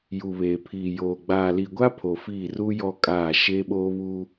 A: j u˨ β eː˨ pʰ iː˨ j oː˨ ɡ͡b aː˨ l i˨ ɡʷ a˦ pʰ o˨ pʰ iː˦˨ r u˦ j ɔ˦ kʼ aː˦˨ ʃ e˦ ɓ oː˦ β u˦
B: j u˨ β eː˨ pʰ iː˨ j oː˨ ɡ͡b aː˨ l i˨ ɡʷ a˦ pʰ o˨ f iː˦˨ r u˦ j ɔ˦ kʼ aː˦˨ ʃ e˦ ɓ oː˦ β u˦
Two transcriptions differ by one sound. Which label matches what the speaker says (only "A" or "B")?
B